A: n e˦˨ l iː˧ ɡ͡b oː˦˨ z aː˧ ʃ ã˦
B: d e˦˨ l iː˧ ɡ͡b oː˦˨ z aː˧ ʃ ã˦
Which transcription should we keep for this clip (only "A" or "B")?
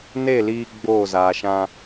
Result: A